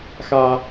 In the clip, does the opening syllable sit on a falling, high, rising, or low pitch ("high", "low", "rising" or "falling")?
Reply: high